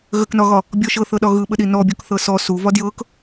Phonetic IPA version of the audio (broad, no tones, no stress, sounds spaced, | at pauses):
ɣ ə k n ɒ ɣ ɒ | bʲ ɔ ʃ ɤ θ ɤ ɗ ɒ ɣ ɯ ɓ ə ɗ i n ɔ bʲ ɔ k θ ɤ s ɔ s u v ɒ d j ɤ k